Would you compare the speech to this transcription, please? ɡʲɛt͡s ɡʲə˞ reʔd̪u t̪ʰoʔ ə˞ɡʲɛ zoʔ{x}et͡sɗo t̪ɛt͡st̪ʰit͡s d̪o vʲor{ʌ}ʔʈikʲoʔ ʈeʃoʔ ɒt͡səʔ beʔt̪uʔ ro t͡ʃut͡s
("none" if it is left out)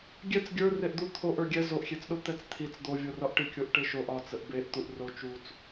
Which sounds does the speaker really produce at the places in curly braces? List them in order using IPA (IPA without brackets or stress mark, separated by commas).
xʲ, ɒ